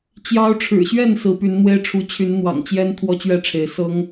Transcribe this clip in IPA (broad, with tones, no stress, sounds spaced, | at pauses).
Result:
t͡ɕ j ɑ˦ ʊ̯ ʈ͡ʂʰ ɻ̩˨˩ ɕ ɥ ɛ˥˨ n s ɹ̩˨˦ p y˨˦ n n̪ w e˦ ɪ̯ ʈ͡ʂʰ u˨˦ t͡ɕʰ y˨˦ n n̪ w ɑ̰˨˩ ŋ t͡ɕ j ɛ˦ n t̪ʰ w ɔ˦ t͡ɕ ɥ ɛ˥˨ ʈ͡ʂʰ e˨˦ ɪ̯ s ɤ˦ ŋ